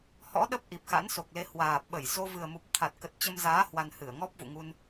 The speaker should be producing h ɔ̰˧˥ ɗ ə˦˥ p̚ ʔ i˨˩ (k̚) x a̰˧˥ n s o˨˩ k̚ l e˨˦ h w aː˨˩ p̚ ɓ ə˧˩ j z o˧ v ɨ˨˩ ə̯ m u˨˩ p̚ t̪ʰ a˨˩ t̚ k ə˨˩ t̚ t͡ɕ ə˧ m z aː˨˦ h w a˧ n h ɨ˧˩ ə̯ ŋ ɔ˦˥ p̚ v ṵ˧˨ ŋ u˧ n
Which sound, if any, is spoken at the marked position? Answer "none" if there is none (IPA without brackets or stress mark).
p̚